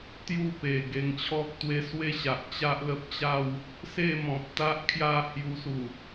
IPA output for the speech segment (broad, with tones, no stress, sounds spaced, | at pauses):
t̪ j u˥˧ p e˨˩ ɡ e˧ ŋ t͡ɕʰ ɔ˦ k̚ t̪ w e˦ s w e˥˧ ɕ a˨ ʔ t͡ɕ a˦ ʔ l ə˦ p̚ t͡ɕ a˥˧ w | s e˥˧ m ɔ̃˨ p̚ t̪ a˦ ʔ kʰ j a˥˧ h j u˧ s u˨˩